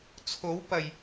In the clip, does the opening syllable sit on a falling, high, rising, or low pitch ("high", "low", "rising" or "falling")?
rising